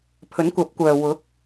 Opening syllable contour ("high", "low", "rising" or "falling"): rising